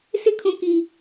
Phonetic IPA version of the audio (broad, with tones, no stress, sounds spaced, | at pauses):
s ɪ˦ kʰ ũ˨ k i˨